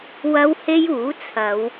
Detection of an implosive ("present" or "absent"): absent